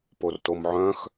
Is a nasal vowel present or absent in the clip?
present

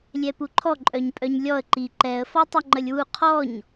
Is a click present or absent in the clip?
present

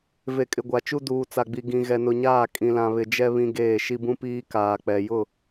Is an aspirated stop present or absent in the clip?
absent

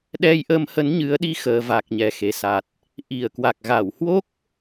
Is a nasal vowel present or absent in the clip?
absent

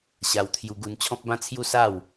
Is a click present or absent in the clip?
absent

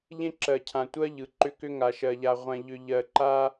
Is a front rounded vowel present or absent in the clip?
present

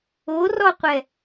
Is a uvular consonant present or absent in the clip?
present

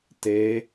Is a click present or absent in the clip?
absent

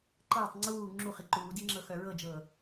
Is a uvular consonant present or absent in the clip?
present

